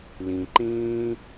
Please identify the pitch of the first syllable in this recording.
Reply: low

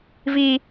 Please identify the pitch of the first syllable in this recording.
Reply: high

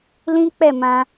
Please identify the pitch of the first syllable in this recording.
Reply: high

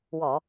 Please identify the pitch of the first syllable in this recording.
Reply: low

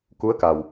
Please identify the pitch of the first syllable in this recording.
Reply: rising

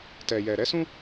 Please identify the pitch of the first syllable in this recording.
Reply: low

